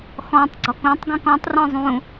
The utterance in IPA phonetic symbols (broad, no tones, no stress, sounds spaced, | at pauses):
x ɔ̃ tˤ ɡ͡ǀ ɔ k ũ tˤ ɡ ũ k ɔ̃ tˤ r ɔ̃ zˤ ũ